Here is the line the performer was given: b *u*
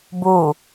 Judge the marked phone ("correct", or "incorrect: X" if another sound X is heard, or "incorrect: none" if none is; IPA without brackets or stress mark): correct